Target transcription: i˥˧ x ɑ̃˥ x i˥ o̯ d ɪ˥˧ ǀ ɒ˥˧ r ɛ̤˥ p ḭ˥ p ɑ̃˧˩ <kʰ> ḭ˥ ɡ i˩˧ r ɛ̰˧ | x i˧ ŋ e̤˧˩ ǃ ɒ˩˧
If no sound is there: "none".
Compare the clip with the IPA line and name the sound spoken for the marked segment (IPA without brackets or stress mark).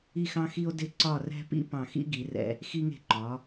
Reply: x